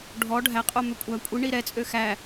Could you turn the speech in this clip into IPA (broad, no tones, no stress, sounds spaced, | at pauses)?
ɖʱ ɔ ɖʱ æ qʼ o m ø kʷʼ æ kʷʼ i ɳ i ɾ ɛ t͡sʼ ø x æ